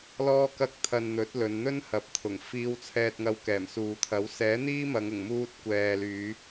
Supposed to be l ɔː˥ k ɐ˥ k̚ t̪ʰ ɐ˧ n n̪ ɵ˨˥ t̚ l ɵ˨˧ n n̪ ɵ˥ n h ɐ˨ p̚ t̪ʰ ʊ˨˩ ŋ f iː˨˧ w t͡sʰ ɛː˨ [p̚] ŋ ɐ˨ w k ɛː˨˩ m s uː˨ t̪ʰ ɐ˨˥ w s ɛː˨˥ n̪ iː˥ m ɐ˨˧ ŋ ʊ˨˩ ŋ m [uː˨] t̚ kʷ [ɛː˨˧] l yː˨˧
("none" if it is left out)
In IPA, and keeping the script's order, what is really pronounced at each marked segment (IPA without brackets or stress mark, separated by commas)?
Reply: t̚, uː˧, ɛː˨